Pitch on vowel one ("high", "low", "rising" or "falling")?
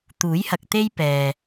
rising